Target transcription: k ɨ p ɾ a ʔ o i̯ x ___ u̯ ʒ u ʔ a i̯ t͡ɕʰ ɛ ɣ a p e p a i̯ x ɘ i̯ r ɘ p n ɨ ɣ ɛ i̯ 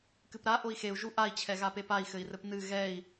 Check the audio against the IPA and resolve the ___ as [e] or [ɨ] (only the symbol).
e